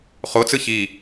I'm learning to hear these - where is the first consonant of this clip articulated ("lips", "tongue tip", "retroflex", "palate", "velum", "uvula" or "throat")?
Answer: uvula